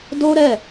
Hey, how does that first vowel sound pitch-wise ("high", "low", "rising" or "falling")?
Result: high